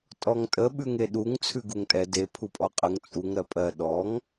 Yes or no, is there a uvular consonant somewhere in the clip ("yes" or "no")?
yes